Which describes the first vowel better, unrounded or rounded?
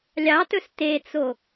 unrounded